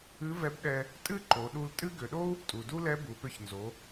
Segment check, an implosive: present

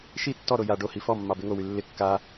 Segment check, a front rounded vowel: present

